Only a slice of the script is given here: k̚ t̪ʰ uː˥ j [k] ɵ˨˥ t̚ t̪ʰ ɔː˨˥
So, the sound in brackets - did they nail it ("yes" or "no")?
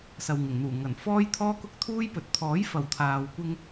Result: no